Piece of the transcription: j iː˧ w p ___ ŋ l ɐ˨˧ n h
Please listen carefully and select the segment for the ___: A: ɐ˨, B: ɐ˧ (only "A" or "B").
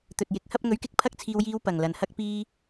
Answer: A